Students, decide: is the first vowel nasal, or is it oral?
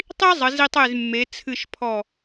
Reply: oral